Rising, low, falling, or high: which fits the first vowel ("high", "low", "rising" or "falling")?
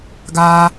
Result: high